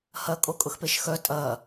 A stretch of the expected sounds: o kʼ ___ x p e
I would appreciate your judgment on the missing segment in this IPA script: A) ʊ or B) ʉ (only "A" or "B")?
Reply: A